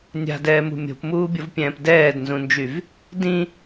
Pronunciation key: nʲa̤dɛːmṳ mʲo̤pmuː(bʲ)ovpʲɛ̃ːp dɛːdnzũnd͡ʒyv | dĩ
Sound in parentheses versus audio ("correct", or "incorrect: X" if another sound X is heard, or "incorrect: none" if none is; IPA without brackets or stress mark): correct